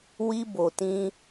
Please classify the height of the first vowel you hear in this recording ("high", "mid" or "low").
high